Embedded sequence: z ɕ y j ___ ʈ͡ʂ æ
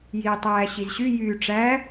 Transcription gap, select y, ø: y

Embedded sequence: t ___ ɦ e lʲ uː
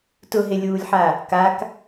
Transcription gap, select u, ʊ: ʊ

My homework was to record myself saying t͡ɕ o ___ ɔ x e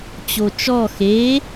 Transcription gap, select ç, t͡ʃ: t͡ʃ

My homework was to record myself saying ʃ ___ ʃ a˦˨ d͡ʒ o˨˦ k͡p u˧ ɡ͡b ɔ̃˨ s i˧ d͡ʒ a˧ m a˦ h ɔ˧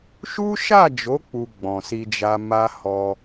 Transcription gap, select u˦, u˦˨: u˦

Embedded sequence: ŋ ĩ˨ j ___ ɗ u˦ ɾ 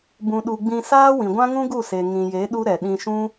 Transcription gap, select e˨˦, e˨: e˨˦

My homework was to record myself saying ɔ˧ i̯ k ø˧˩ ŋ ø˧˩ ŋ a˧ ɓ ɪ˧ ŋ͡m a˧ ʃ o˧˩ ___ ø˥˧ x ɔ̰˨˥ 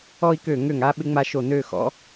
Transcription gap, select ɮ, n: n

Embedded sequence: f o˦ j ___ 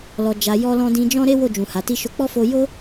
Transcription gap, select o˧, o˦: o˦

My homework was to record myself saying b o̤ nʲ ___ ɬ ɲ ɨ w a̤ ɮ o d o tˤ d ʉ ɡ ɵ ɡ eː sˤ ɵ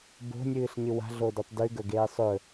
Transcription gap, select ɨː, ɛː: ɨː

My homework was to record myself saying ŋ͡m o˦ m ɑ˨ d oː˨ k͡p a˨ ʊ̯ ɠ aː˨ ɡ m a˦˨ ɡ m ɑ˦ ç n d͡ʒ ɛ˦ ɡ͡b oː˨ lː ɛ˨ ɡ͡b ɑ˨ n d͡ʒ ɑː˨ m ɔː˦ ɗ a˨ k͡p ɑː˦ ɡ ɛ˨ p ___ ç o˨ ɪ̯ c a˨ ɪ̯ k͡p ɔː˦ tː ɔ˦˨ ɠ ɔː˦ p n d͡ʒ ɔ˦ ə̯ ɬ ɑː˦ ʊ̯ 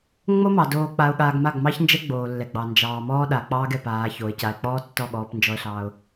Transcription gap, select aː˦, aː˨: aː˨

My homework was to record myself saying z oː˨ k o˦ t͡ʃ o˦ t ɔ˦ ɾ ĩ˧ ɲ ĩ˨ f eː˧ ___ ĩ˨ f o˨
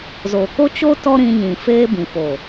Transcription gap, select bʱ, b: b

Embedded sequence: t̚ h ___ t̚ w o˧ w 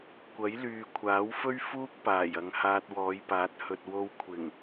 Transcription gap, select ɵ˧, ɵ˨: ɵ˨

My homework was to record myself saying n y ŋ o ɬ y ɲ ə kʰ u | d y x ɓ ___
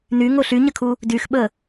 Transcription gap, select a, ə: ə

